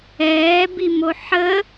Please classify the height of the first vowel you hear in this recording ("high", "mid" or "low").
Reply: mid